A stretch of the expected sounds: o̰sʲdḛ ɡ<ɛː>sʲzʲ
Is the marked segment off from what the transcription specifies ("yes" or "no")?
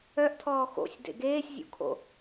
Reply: yes